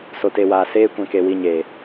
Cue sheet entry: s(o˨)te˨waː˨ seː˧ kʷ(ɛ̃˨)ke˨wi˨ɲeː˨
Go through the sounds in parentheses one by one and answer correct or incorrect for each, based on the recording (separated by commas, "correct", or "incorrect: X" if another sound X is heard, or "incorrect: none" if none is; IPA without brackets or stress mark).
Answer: correct, correct